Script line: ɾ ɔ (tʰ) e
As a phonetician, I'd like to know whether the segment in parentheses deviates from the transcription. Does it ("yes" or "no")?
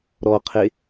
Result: yes